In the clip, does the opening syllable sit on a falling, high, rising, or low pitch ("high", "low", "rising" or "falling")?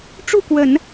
falling